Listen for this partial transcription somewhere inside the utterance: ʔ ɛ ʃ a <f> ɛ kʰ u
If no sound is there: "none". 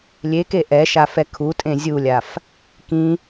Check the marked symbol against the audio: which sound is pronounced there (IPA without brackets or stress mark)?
f